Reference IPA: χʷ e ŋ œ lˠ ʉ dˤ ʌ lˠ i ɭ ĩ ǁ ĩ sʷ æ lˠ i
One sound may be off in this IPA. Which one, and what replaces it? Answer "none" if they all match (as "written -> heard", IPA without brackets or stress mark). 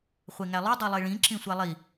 œ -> æ